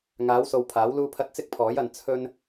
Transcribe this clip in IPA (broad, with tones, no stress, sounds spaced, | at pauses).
ŋ aː˨˥ w s o˨ w pʰ aː˨˥ w l uː˥ pʰ ɐ˥ t̚ t͡s ɪ˥ k̚ pʰ ɔː˨˥ j ɐ˨˧ n t͡sʰ ɵ˥ n